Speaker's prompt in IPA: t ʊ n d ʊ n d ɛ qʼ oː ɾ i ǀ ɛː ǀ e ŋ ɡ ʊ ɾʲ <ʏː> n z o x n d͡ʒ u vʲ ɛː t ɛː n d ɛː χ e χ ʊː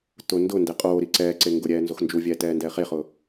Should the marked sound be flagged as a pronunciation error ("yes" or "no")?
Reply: yes